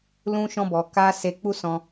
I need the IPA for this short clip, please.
l ũ˦ ʃ ɔ̃˦ b ɔ˧ k a˦ s e˧ k͡p u˦ s ɔ̃˧

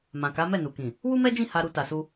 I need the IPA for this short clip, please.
m ã˨ k a˨˦ m ɛ˦˨ n u˨ k ĩ˨ | w u˦ m ɛ˦ d͡ʒ ĩ˦˨ h a˧ ɾ u˧ t a˨ s u˧

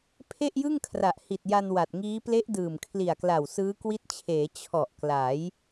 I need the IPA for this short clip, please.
pʰ e˥˩ ʔ j ɯ˥˩ ŋ kʰ r a˨˩ ʔ h i˨˩ t̚ j a˧ n w a˨˩ t̚ ŋ iː˦˥ p l e˦˥ ʔ d ɯː˨˩ m kʰ l i˨˩ a̯ k l a˨˩ w s ɯː˦˥ k w i˦˥ t̚ t͡ɕʰ eː˩˦ t͡ɕʰ ɔ˨˩ ʔ k l a˩˦ j

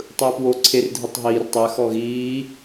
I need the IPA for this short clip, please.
tˤ ɯː p w o ǀʰ e r dʱ i tˤ ɦ iː r tˤ ɛ x ɔ ɣ iː

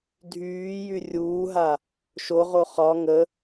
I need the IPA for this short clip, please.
dʱ yː j y rʲ uː ɦ a | ʃ o ʁ o χ ɒ ŋ ə

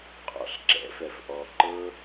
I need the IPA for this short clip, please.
qʼ ɔ̰˧ ɬ ǁ ɛ̰˨˦ f ɛ˧ f ʔ ɔ˧ ǃ ɤ˦

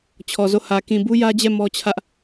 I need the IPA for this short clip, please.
t͡ɕʰ ɔ˨ z o˦˨ h ä˨ k ĩ˨ b u˦ j ä˦ d͡ʑ ɛ˦˨ m ɔ˦ t͡ɕʰ ä˦ ʔ

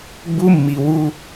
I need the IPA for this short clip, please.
ɡ͡b u˦ mː i˨ w u˦

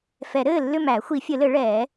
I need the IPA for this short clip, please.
f ɛ˨˩˦ ɾ ɘː˦˨ lː ʏ˦˨ m æ˨˩˦ xʷ i˨˩˦ fʲ ɘ˨˩˦ l ɘ˨˩˦ ɭ ɛː˨˩˦

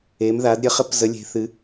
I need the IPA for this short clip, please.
e˩˧ m ð a˩˧ d ɾʲ ə˩˧ χ ə˧˥ p z ə˩˧ lʲ e̤˩˧ θ ɨ˩˧

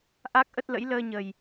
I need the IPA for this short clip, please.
ʔ a˦˥ k̚ ʔ ə˦˥ t̚ l ə̰˧˥ j l əː˧ ɲ ə˨˩ j

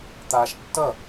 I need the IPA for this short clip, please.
t̪ aː ʃ tː ʌ

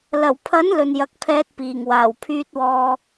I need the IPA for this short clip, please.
l ɐ˨˩ w pʰ ɐ˨˥ n l ɵ˨ n j ɐ˨˥ k̚ pʰ ɛː˧ t̚ p iː˨˩ ŋ w aː˨˩ w pʰ yː˧ t̚ w ɔː˧

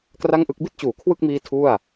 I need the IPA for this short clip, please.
k r a˥˩ ŋ ʔ ɯ˦˥ k̚ b i˥˩ t̚ t͡ɕ uː˩˦ kʰ w ɯ˥˩ k̚ m iː˦˥ tʰ u˥˩ a̯

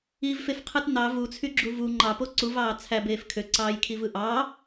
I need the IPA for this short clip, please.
i v f e f qʰ ɯ t n ɑ v u t͡sʰ y ɡ͡ǁ u v u ŋ͡ǃ ɑ p o ǀ u v ɑː t͡sʰ æ b eː f kʰ ø ǀ ɑː j kʰ i v ɯ ʔ ɑː

